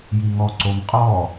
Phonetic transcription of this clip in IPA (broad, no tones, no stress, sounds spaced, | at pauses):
j i ŋ ɔ ǀ o m qʼ ɔ